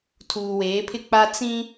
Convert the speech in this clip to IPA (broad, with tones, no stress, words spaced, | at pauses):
tʰuː˨weː˨˦pʰɪ˦ k͡pa˦ t͡sĩ˦